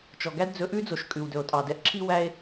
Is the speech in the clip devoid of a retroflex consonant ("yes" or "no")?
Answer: yes